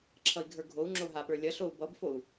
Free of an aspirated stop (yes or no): no